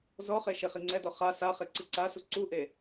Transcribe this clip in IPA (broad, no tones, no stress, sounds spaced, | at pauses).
z ɔ χ e ʃ e χ i ŋ͡ǀ ɛ d ɔ χ a s a χ e ǀ i ǀ a s u ǀ u ʔ e